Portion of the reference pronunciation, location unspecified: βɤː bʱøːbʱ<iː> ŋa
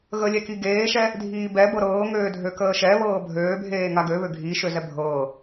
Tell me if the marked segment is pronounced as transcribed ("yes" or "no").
no